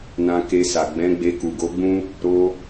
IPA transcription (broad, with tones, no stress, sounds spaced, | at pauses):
n ã˧ k e˧ s a˨ ɡ͡b ɛ̃˨˦ ɡ͡b e˧ k u˨ ɡ o˨˦ ɡ͡b ũ˦ | ɾ o˧